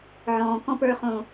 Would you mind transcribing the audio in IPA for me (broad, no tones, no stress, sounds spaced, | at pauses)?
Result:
ʕ ɔ̃ː k ɔ̃ p ə˞ χ õ